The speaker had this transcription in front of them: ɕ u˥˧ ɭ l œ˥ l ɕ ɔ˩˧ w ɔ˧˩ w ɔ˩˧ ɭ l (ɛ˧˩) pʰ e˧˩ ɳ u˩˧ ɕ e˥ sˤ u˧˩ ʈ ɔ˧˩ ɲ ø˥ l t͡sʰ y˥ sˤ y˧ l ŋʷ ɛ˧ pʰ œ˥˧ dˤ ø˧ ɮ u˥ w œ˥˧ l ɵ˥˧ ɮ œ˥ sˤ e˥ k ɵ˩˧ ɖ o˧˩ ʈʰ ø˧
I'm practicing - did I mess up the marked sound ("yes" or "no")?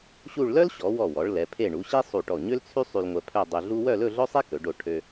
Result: yes